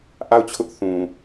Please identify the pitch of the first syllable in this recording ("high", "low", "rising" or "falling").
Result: falling